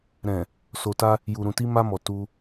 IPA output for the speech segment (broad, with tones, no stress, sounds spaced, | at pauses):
ɾ ɛ̃˨ | s o˨ t a˧ | j u˨ ɾ ũ˨ t i˧ m a˧ m ɔ˨ t u˧